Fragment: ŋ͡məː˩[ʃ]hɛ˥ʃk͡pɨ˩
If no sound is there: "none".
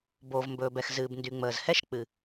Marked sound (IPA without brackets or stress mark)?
z